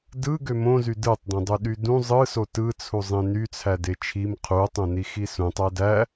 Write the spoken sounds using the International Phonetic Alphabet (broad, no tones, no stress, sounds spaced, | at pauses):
d ɯ ɡ ø m õ z y d ɯ tˤ d õ dˤ u ɗ y d ũ zˤ ɯ s o t ɯ t͡sʰ u zˤ ẽ n y t͡sʰ æ d e t͡ʃʰ i m qʰ u tˤ õ n i x i s ũ tˤ æ d æ